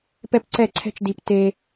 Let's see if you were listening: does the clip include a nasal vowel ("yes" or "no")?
no